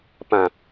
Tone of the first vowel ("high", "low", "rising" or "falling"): low